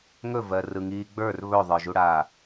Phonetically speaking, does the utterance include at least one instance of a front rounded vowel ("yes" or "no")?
no